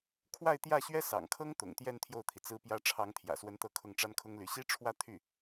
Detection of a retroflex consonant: present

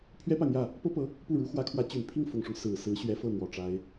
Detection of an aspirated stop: present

